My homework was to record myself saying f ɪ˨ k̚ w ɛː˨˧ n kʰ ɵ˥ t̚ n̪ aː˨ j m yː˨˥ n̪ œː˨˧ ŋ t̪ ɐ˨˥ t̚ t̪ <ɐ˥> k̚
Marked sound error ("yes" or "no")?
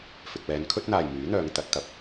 yes